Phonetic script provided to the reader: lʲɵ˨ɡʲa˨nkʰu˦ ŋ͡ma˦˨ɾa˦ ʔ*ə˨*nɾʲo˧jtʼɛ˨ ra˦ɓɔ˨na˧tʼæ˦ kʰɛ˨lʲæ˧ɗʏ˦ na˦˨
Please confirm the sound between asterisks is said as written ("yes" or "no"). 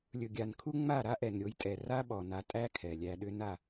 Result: no